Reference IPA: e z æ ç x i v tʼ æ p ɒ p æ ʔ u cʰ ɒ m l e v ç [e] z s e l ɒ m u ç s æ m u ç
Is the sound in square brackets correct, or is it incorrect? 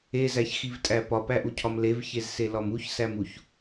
correct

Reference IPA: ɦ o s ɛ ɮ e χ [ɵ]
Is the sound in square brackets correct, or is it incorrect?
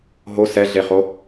incorrect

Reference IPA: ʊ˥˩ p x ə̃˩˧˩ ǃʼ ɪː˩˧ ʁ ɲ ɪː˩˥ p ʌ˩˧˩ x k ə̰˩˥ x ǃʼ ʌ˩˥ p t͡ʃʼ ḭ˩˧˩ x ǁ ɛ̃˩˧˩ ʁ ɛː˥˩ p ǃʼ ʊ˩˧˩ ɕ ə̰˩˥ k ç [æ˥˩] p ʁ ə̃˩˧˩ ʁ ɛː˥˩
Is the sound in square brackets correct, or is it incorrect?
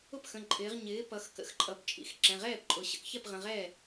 incorrect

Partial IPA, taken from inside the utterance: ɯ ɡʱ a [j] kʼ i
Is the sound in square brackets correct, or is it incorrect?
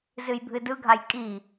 correct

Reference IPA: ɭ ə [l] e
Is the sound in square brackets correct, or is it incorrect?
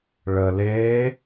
correct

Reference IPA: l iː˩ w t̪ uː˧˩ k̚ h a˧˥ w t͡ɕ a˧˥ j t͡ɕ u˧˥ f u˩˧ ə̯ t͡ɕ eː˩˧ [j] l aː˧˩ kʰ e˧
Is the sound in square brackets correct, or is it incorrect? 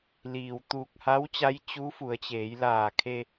correct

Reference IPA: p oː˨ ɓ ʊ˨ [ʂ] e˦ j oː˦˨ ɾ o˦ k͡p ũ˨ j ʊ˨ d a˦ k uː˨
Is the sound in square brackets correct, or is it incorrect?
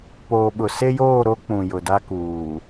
incorrect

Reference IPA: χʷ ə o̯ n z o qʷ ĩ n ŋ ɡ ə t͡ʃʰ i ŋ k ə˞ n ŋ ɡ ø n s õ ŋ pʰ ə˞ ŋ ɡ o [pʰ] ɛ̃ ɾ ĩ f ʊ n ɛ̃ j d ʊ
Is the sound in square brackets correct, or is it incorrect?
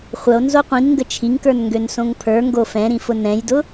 incorrect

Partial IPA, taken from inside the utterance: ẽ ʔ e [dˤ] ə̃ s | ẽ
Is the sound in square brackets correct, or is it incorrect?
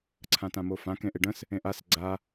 incorrect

